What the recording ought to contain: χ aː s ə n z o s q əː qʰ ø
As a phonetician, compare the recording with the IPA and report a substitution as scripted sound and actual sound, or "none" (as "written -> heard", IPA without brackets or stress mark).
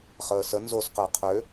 aː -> əː